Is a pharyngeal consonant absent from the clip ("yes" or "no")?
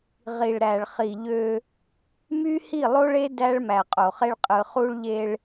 yes